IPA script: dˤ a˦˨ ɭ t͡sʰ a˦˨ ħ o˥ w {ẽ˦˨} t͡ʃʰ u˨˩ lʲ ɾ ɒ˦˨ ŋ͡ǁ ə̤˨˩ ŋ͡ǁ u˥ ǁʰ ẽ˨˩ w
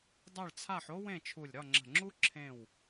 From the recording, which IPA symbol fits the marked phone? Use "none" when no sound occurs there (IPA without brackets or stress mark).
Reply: ẽ˦˨